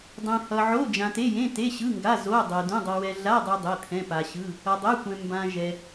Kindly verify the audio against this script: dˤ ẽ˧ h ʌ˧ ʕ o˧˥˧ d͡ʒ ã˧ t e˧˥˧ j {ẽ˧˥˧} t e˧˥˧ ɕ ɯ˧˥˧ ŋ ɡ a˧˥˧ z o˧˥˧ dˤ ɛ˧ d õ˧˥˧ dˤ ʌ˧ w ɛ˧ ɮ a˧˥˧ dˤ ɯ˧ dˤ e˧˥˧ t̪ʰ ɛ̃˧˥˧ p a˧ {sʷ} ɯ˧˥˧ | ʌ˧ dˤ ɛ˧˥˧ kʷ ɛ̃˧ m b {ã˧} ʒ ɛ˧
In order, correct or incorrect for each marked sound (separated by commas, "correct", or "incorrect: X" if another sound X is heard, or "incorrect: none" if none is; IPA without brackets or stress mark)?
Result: correct, incorrect: ɕ, correct